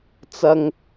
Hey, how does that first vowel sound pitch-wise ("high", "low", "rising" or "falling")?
high